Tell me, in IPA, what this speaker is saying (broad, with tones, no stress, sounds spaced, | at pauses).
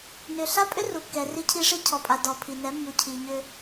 n ʏ˨ ɬ a˦ pʼ ʏ˦ r u˨ kː ɛ˨ r i˦ cʰ i˦ ʂ i˦ cʰ ɔ˨ pʼ a˨ d ɔ˨ pʰ i˨ n ɛ˨˦ mː u˨ cʰ i˨ ɲ ʏ˦